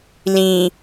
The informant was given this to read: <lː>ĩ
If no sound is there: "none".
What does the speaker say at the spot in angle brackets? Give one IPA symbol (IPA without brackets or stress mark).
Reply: l